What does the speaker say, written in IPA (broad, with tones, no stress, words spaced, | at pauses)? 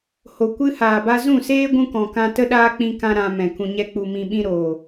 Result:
ho˨kʷɨ˦haː˨ba˦ zũ˦˨seː˦ ɡʷũ˦kɔ̃˨ kã˧ tə˦ɗaː˦k͡pĩ˧kã˧ ɾã˧mɛ̃˨ kũ˨ɲɛ˧k͡pu˨ mĩ˧ɓĩ˦ɾoː˨